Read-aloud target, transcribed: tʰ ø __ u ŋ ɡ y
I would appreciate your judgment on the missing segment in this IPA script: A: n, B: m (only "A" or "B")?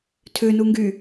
A